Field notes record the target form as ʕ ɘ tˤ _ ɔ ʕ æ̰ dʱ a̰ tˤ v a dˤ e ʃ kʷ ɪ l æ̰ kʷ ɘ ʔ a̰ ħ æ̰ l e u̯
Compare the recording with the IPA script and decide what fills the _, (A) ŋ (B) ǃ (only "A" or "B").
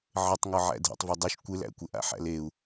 A